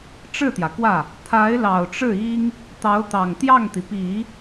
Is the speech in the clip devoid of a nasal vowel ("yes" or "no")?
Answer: yes